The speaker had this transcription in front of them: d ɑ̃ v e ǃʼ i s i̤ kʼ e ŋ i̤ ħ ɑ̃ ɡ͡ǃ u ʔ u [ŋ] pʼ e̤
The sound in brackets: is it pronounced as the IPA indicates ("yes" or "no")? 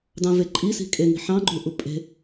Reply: no